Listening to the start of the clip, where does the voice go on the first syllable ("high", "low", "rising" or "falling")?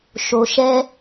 low